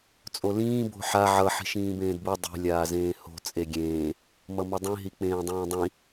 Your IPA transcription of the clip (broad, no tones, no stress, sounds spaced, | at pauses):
t͡sʼ o l ĩː b o̤ ħ a ʕ ʌ ħ i̤ ʃ ĩː b ẽː d b u dˤ e̤ lʲ aː z ẽː h o̤ t͡sʼ e ɡʲ ẽː | m ʌ m ʌ dˤ ĩ ɦ i k͡p ẽː dˤ ĩː dˤ ĩ